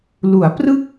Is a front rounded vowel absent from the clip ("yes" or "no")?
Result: yes